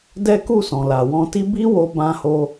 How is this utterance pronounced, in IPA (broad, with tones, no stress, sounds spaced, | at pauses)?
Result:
d ɛ˦ k u˦˨ s ɔ̃˨ l a˨ w ɔ̃˧ t i˦ b i˦ w o˧ b ã˧ h o˧